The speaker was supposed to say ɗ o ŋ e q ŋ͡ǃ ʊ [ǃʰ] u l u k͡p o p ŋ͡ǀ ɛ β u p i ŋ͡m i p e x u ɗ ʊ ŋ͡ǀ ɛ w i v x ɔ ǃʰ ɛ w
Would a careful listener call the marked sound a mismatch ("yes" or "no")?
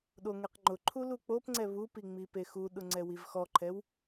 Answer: no